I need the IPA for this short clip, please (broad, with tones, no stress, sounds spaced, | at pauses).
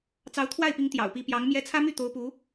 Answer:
t͡s ɑ˧˥ ʊ̯ t̪ʰ w a˥˩ ɪ̯ p i˧˥ ŋ t̪ j ɑ̰˨˩ ʊ̯ p i˧˥ p j ɑ˧˥ ŋ m j ɛ˧˥ t͡sʰ ä˥ m y˥˩ t̪ o˧˥ ʊ̯ p u˧˥